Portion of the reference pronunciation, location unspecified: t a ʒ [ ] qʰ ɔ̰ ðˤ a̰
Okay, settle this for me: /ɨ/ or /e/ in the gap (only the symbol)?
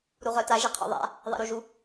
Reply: e